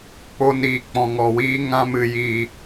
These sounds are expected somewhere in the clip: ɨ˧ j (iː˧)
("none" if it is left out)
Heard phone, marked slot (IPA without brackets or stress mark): iː˧